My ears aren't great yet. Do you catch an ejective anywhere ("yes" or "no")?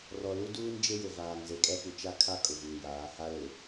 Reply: yes